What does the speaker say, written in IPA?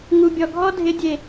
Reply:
ŋ u˨ bʲ ɔ˨ ɡʱ ɔ˦ dʱ ɪ˨˦ dʲ e˨

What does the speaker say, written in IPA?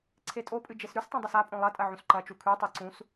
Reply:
ǀʰ e tʼ o pʼ ɨ d͡ʒ e s ɾ ʉ s tˤ õ dˤ ɐ s a pʼ õ lˠ ɐ tʼ ɐ ʕ ũ s ǃ ɐ t͡ʃ u kʰ ʉ tˤ i ǀ ũ s

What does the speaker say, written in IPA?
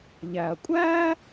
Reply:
ʎ æ˩ ɐ̯ kʷʼ æː˥

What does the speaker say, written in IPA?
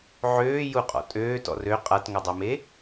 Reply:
ʕ øː j u qʼ ɔ̰ tʼ øː t ɔ̰ r ø qʼ a t ŋ o dˤ u m e

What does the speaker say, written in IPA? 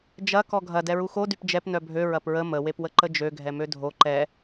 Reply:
d͡ʒ ɐ k ɔ ɡʱ ɐ d ɛ ɹ u x o d y p d͡ʒ ɛ p n œ bʱ ø ɹ ɐ p ɹ ə m ə w e p w ə ǃ ə d͡ʒ ø ɡʱ ɛ m ø dʱ o ǃ ɛ

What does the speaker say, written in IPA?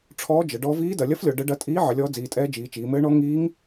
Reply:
ʈ͡ʂʰ ɔː˧˥ d͡ʒ ə˩˧ ɖ ɔ˧˥ v iː˧˥ d ɐ˩˧ lʲ ɐ˧˥ f lʲ ɔ˩˧ ɖ ə˧˥ ɖ ɐ˧˥ tʼ iː˧˥ ʕ ə˩˧ lʲ ɔː˧˥ d͡z iː˩˧ tʼ ɛː˧˥ d͡ʒ iː˩˧ t͡ʃ iː˩˧ m ɘː˧˥ ɳ ɔ˧˥ ŋ iː˧˥ ŋ

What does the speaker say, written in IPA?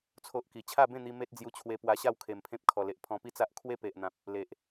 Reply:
t͡sʰ o˦ ʔ k i˨˩ t͡ɕʰ a˥˧ b ẽ˥˧ n̪ i˧ m e˦ t̚ d͡z j u˧ t͡ɕʰ w e˧ p w a˧ ɕ a˥˧ w kʰ e˨˩ m pʰ ẽ˦ p̚ kʰ ɔ˨˩ l e˨ ʔ pʰ ɔ̃˧ p i˦ t͡s a˦ ʔ kʰ w e˦ p e˨ ʔ n̪ ã˨ p̚ | l e˨ ʔ

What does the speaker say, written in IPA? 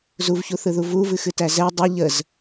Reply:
z u v ç u θ ɯ ð u v u v ɨ x ɨ t æ z ɛ dˤ ɯ ʎ ə z

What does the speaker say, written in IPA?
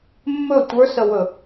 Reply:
mː ɵ tʷ ə˞ s ə w ɵ

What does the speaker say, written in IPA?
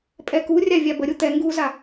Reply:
pʼ ɛ k u rʲ a vʲ a b ə ɾʲ u t̪ ɛ ŋ ɡ u z a

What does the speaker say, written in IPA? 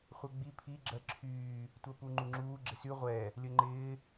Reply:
χʷ ɛ ɡ͡b i pʰ i ɡ͡ǁ ɜ ǁʰ yː | tʷ ɜ p u ŋ͡ǃ u ŋ͡ǁ uː ɡ͡ǁ ɪ s y ʁʷ ɛ | lʲ ə ŋ͡ǃ ɪː

